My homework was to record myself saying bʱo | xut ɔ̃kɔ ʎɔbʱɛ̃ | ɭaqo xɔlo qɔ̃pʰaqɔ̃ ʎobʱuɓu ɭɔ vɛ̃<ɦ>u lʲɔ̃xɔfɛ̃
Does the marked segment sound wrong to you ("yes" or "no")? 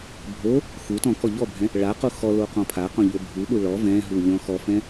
no